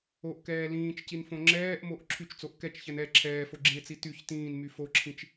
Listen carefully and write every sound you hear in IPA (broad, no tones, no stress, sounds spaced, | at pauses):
o ʔ k ɛː l ĩː t͡ʃ c i n f õ ŋ͡ǁ ɛː ʔ m o ʔ ǁʰ y t͡ʃ t͡s o ʔ k ɛ t͡ʃ ç ɛ n ɛ ǁʰ ɛː f o ɡ͡ǁ ĩ e̯ t͡s i t y ç t ĩː n m y f o ǁʰ ĩ t͡ʃ